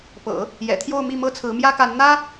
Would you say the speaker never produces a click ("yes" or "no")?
yes